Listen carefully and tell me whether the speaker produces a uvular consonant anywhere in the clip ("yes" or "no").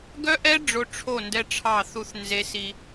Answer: no